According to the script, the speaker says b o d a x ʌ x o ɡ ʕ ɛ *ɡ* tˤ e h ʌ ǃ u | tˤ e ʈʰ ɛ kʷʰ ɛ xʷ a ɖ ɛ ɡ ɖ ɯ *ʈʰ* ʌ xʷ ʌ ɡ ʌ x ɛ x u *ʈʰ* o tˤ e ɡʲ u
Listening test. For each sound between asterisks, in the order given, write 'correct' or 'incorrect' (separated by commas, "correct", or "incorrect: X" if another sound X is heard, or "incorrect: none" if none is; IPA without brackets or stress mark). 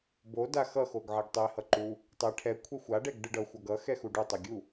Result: correct, incorrect: ɖ, incorrect: ɖ